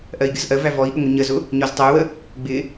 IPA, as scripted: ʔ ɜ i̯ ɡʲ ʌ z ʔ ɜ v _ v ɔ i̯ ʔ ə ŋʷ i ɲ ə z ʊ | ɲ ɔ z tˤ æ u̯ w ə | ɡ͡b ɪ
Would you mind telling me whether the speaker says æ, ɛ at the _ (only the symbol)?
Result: æ